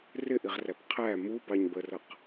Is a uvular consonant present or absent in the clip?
present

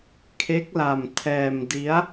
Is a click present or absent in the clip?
absent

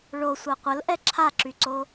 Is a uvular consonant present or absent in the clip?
present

